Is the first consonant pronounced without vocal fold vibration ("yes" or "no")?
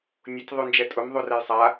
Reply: no